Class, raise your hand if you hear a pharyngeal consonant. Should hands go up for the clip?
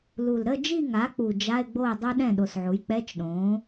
yes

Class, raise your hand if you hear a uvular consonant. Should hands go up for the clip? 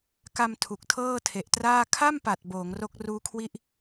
no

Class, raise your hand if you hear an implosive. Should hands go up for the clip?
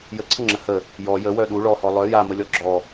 yes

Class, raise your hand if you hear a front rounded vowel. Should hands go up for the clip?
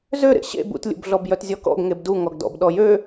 yes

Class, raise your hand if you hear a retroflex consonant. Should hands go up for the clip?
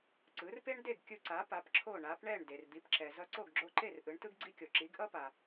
yes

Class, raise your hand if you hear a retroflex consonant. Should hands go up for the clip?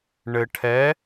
yes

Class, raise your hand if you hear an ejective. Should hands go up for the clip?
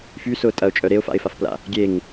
yes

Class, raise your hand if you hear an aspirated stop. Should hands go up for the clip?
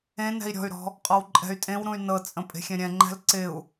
no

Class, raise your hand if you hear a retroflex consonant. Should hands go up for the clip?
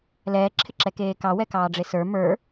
yes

